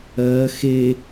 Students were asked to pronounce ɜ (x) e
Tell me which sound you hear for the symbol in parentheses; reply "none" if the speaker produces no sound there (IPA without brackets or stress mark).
x